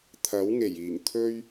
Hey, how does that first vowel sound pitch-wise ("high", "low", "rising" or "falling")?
rising